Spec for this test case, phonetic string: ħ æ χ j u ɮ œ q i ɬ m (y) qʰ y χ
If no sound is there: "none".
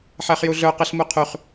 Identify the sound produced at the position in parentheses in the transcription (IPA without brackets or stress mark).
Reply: u